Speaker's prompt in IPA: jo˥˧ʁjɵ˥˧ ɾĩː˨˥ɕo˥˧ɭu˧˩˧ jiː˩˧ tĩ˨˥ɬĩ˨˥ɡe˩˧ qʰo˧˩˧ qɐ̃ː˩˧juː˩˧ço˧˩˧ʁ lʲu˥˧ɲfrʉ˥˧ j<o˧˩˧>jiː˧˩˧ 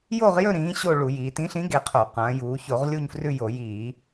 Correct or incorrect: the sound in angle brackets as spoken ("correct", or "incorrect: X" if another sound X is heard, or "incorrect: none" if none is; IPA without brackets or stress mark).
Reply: correct